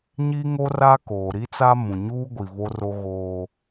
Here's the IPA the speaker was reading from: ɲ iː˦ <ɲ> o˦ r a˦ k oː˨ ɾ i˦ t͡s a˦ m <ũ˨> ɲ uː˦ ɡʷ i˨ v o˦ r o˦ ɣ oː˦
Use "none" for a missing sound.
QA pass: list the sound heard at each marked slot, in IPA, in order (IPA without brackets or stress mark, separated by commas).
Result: ŋ, ũ˨